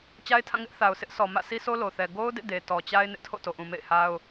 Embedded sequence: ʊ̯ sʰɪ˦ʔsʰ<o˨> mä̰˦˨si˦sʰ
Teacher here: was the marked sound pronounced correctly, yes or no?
no